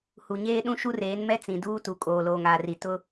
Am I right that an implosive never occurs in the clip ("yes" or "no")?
no